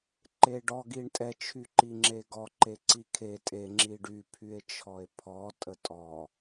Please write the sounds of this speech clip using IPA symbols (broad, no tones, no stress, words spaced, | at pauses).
ǃeɖɔ ɡiɳtʼɛ t͡ʃʰyǃiŋ͡ǁeɡɔ ǃeǀikʰe tʼe ŋ͡ǁiɖy pʰye̯t͡ʃʰɔe̯pʰɔ tʼətʼɔ